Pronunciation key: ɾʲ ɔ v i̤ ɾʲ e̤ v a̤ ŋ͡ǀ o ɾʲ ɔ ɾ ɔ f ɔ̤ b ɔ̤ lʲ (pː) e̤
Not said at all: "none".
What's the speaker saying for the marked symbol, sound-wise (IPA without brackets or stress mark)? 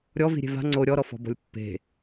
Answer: pː